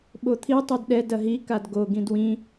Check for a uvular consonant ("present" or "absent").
absent